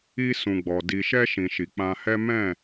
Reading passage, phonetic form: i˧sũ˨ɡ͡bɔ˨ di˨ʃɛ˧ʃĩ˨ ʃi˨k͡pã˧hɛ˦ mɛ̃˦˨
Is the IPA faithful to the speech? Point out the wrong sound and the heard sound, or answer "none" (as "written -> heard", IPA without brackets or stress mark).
none